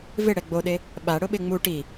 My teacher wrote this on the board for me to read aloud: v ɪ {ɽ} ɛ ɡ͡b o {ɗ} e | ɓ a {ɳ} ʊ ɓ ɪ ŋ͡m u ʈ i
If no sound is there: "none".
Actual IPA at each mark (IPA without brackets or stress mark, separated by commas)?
ɽ, ɗ, ɽ